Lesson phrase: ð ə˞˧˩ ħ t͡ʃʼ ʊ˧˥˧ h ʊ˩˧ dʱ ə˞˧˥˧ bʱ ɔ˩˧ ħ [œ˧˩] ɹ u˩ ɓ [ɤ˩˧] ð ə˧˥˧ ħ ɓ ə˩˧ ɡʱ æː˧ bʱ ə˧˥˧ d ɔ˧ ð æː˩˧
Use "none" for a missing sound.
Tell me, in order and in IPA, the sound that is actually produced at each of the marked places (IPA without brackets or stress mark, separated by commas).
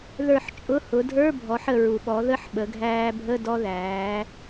ə˧˩, ɔ˩˧